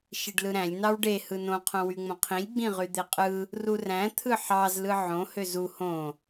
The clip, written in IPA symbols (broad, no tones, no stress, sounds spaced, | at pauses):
ʃ i ɖ l ɯ ɾ æ̃ lʲ n ɑ w ɖ e h ɯ n õ qʰ õ w y ŋ͡m õ qʰ ĩ lʲ ɡ͡b ĩ ʁ y d̪ e qʼ ɯ | r u r æ̃ t̪ʰ ɯ ħ ɑ z l ɯ ʕ õ h ø z u h õ